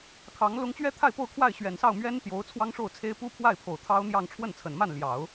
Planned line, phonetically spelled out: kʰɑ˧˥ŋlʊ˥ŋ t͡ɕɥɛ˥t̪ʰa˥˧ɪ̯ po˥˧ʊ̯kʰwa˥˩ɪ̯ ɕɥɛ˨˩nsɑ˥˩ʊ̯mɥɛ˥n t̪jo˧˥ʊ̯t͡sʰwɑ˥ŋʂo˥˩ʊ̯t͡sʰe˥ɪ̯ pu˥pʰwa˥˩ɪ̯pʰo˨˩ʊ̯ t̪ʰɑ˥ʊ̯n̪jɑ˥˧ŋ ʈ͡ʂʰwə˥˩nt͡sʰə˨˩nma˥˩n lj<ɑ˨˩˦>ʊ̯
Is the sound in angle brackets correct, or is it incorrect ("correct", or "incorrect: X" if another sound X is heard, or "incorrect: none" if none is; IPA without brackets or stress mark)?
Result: correct